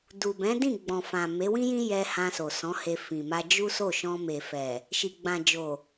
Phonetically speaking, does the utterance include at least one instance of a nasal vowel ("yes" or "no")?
yes